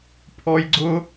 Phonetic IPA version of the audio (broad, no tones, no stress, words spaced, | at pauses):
pʰɔjɡ͡ǀʊ